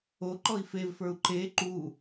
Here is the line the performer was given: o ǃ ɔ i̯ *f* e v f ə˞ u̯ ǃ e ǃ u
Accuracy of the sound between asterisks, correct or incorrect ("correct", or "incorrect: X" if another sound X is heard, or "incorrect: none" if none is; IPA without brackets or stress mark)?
correct